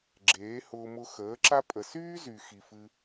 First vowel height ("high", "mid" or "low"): mid